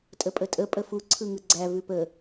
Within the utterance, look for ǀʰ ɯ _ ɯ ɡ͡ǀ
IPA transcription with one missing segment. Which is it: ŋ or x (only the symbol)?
ŋ